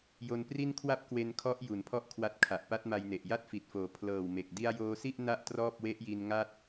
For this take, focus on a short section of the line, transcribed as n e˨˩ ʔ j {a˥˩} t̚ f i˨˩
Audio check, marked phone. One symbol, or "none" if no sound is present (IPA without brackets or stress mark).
a˥˩